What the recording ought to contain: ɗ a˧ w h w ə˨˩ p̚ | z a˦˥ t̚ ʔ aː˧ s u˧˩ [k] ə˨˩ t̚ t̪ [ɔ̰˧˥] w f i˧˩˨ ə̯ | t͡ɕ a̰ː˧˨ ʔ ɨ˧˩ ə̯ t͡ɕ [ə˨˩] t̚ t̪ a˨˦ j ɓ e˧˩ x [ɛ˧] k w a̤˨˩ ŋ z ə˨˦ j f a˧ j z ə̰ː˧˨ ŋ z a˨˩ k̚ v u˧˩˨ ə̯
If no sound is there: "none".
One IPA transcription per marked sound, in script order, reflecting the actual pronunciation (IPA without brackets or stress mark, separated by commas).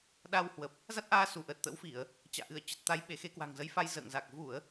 ʔ, ə̰˧˥, ə˨˩, e˧